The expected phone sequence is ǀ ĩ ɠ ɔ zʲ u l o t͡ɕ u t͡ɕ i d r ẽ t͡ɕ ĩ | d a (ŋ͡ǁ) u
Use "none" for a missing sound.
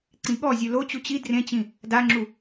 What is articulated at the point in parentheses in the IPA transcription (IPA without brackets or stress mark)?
ŋ͡ǁ